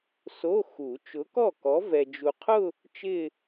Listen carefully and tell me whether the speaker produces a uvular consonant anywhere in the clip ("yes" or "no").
yes